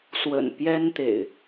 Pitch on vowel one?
low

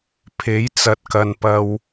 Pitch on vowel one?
rising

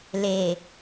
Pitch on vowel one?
low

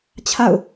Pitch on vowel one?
falling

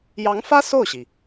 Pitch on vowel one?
rising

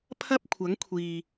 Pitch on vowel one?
high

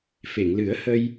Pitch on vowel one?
low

